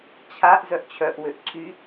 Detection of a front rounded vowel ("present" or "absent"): present